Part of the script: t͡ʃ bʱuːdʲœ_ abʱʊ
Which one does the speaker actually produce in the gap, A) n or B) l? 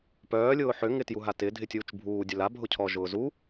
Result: B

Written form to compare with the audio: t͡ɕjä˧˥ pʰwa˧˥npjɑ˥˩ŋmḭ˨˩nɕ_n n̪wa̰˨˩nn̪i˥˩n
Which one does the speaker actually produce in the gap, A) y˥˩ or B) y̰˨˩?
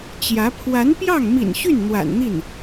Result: A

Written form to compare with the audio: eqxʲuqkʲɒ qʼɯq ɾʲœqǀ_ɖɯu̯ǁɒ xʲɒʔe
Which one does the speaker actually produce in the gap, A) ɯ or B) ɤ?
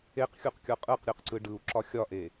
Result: A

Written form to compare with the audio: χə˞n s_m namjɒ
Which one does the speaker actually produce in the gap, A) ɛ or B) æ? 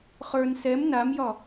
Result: A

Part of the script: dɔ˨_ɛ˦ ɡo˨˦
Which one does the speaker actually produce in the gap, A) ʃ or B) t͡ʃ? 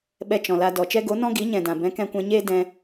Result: B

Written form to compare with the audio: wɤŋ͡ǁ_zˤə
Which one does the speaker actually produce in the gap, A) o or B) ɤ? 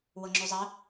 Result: A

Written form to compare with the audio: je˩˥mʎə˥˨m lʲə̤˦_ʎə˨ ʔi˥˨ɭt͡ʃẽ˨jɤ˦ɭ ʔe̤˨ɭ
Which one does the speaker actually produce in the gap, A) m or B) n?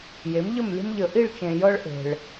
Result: A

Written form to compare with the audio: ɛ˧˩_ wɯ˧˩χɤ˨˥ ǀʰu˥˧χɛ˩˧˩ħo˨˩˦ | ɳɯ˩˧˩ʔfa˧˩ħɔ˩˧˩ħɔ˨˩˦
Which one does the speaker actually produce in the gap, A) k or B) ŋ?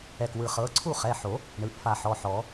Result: A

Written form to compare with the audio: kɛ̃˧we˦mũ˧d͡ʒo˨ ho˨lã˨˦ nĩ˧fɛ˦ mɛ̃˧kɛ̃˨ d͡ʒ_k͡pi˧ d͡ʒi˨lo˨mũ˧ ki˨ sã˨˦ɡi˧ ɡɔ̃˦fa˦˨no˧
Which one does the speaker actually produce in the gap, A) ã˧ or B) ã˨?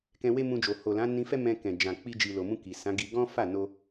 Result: B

